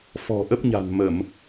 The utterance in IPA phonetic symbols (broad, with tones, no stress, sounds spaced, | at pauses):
f ɔ̤˨˩ ʔ ə˦˥ p̚ ɲ a̤˨˩ n m ə˧˩˨ m